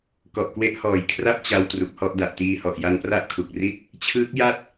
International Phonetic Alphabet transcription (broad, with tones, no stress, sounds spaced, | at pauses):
k ɔ˨˩ ʔ k w e˦˥ ʔ h ɔː˩˦ j kʰ r a˥˩ p̚ t͡ɕ a˧ w t r u˨˩ k̚ h ɔ˥˩ ʔ d a˨˩ ʔ t iː˧ h ɔ˨˩ ʔ j a˧ n p r a˥˩ ʔ kʰ u˨˩ k̚ r i˥˩ t̚ | t͡ɕʰ ɯː˦˥ k̚ j a˥˩ t̚